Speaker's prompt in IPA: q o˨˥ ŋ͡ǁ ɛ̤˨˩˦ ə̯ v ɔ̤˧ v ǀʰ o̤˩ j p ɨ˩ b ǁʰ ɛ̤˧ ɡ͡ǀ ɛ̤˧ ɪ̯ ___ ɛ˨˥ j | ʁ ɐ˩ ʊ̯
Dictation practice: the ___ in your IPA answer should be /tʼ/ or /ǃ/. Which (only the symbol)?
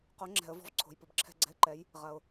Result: ǃ